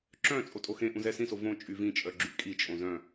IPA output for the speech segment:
ǁ œ̃ t͡sʼ o tʼ o x ẽ ʔ ũ z ɛ s ĩ s o v õ t͡ʃʼ y v ĩ t͡ʃʼ œ ɡ͡ǁ y kʼ i t͡ʃʼ õ z œ̃

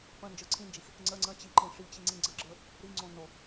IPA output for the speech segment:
p ə̃ n d͡ʒ ə˞ ǀʰ ĩ n d͡ʒ i x | ŋ͡ǀ ə ŋ͡ǀ ə̃ t͡ɕ i ǃ ĩ ʂ i t͡ɕ i ŋ͡ǀ ĩ ɡ͡ǀ ə ɡ͡ǁ ə˞ | ɾ i ŋ͡ǀ õ n o

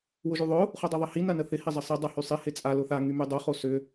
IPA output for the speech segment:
w ʊ ʒ y ðˤ ʊ | χ u dˤ o ðˤ ɐ h i n ɐ n ə θ ɪ h ɪ zˤ ɐ sˤ ɪ dˤ a h y sˤ i h ɪ t͡sʼ a l ʊ θ a ŋ y m y dˤ o χ o s ʏ

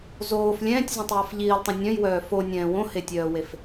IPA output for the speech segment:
z oː f lʲ ɛ̃ː tʲ z œ̃ tˤ j ɔ f ʎ iː lˠ tˤ õ nʲ œ̃ j w œː f o nʲ ɛ̃ː w õ h e tʲ œː w e f

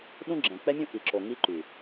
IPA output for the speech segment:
ɗ ũ˦ ɡ͡ǁ ɛ̃˨ k͡p ɛ˦ mʲ ũ˦ ʔ i˨ ǁ o˨ ŋ i˦ ǃ y˨

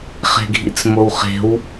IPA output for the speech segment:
χ e̤ ɡʱ ḭ t͡s m o w χ e̤ w

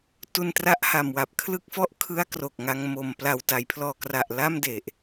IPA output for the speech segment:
t u˧ n t r a˦˥ ʔ h a˨˩ m w a˨˩ p̚ kʰ l ɯ˥˩ k̚ f ɔ˥˩ ʔ kʰ ɯ˦˥ a̯ k r o˨˩ k̚ ŋ a˧ ŋ m o˨˩ m p l a˨˩ w t a˩˦ j pʰ l ɔː˨˩ k r a˨˩ ʔ l a˥˩ m d e˨˩ ʔ

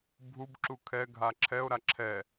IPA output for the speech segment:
bʱ u b ǁ u kʰ ɛ ɡʱ a ǁʰ ɛ o̯ ɾ a ǁʰ ɛ

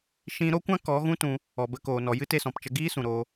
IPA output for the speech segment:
ʃ ĩ˦ ɾ o˦ kʷ ã˦ k ɔ˨˦ ɣ ũ˦ t ũ˧ | ɔ˨ b ə˧ k oː˨ n ɔ˨ j ɨ˦ t e˧ s ɔ̃˨ p t͡ʃ ə˧ ɡ iː˦ s ũ˨ ɾ oː˧

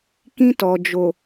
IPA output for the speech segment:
k ĩ˦ t ɔ˨ d͡ʒ o˨

